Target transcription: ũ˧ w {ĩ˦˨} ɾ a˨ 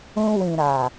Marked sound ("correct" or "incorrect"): incorrect